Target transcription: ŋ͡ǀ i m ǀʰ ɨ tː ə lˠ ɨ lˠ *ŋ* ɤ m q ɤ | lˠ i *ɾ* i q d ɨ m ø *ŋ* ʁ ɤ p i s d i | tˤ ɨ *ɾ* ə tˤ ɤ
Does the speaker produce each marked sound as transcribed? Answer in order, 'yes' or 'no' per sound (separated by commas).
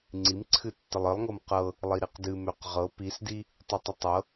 yes, yes, no, no